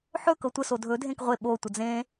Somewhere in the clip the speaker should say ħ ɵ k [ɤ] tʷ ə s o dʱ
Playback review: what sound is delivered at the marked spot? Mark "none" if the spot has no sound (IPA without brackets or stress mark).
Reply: ɤ